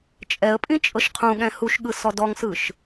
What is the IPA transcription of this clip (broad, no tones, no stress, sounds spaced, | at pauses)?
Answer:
t͡ʃʼ ɛ ə̯ pʼ ĩ t͡ʃʼ ɤ ʃ qʰ ũ ɠ ɛ̃ h u ʃ ɠ ɯ s ɔ d ɔ ŋ s ɯ ʃ